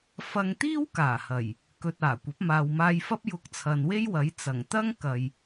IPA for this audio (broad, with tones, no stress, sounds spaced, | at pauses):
f ɐ˧ ŋ t̪ iː˥ w k aː˨˩ h ɐ˨˩ j | k ɵ˨ t̚ aː˨˩ kʷ ɐ˨˥ p̚ m aː˨ w m aː˧ j f ɐ˥ p̚ j ʊ˧ k̚ t͡sʰ ɐ˨ n w e˥ j w ɐ˨˥ j t͡s ɐ˨˩ ŋ t̪ ɐ˥ ŋ k ɐ˨ j